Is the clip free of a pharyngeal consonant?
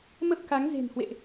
yes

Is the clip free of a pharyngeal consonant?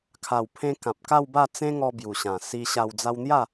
yes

